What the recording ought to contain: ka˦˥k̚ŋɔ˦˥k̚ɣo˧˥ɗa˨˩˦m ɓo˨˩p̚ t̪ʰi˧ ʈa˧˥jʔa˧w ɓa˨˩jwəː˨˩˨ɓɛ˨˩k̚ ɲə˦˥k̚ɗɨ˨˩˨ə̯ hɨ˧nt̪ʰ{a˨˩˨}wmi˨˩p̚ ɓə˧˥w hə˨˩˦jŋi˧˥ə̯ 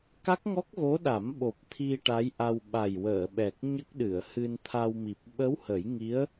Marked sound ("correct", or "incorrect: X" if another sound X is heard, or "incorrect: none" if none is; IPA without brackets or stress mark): incorrect: a˧